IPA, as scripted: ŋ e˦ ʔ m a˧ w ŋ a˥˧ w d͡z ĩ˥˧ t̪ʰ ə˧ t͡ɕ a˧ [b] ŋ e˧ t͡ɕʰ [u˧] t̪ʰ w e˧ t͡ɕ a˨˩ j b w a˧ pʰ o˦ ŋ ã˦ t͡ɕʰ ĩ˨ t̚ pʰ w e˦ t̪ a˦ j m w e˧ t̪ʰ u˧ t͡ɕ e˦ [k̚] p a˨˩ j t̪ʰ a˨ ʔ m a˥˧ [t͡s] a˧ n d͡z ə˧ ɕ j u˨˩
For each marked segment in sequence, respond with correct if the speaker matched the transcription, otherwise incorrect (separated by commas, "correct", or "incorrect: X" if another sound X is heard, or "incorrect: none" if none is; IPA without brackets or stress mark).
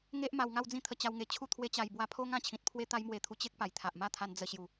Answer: incorrect: w, incorrect: u˥˧, correct, incorrect: t̪ʰ